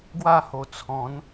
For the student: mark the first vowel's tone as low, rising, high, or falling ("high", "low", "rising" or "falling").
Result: falling